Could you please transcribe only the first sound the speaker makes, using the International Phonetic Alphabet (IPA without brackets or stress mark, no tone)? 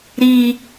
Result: ɾ